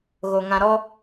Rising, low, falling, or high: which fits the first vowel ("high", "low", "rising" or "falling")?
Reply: low